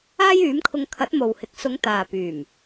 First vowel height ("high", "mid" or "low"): low